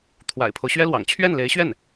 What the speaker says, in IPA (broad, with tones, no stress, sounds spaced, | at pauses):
t̪ʰ w a̰˨˩ ɪ̯ pʰ o˦ ʊ̯ ɕ ɥ ɛ˥ l w ɑ̰˨˩ ŋ t͡ɕʰ ɥ ɛ˥˩ n l e˧˥ ɪ̯ ɕ ɥ ɛ˥˩ n